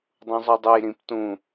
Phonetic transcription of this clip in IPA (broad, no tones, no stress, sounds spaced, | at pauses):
dˤ ũ zˤ u dˤ o j ɾ ĩ p t ũ